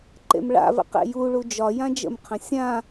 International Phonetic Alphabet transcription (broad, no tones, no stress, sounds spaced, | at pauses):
ǃ ḛ m ɭ a̰ v ə̰ q ḛ j u ɭ u d͡ʒ ɒ j ã d͡ʒ ə̰ m qʰ ə̃ sʲ ã